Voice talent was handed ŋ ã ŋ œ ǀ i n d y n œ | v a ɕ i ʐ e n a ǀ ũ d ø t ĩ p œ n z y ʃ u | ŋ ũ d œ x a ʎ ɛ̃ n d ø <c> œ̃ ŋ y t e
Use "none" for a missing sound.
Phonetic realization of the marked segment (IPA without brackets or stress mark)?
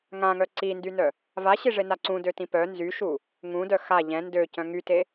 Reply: c